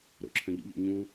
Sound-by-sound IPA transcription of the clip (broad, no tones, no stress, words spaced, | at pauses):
ɾo̰ǁʰœ̃ʎṵʎo̰ ɲũ